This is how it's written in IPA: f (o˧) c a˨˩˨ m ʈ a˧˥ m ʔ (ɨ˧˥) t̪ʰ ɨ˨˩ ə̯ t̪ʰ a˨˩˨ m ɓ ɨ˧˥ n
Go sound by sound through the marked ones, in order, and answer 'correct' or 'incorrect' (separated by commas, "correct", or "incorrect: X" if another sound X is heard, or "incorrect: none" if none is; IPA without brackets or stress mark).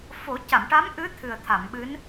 incorrect: o˨˩˦, correct